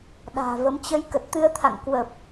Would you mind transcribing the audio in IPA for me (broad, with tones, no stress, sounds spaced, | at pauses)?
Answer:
ɗ a̤ː˨˩ v ə˨˦ m t͡ɕ ə˨˦ j k ə˨˩ t̚ t̪ ɨ˧ ə̯ t̪ʰ a̰˧˨ ŋ k w ə˨˩ p̚